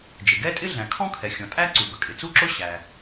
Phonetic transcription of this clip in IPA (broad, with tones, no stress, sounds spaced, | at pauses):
d͡ʒ ɪ˩ ɡ ɛ˥ tʼ ɪ˥ ɮ æ̃˩ kʰ ɔ̃˥ kʰ ɛ˩ xʲ ɔ̃˩ tʼ æ˥ ǀ u˩ b ə˩ kʼ ɪ˩ t͡s u˥ ǁ ʊ˥ ɕ æ˩